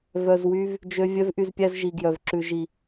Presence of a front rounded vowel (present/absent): present